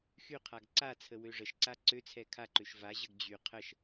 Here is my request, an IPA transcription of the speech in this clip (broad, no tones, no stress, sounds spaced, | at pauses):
x y qʰ a ɡ ǀ a t͡sʰ ə w ø ʐ ə ʃ ǀ a ǀ ø t͡sʰ ɛ kʰ a ǃ ø ʃ v a ʑ ə ɡ d͡ʑ y qʰ ə ʃ